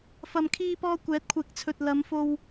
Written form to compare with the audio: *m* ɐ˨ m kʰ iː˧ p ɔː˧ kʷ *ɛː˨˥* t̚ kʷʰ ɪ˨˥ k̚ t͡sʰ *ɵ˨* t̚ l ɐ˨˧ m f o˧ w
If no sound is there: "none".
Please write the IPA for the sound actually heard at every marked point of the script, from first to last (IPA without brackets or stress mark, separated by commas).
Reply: f, ɛː˨˥, ɵ˨